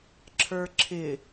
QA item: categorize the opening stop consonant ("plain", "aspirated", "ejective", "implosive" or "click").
click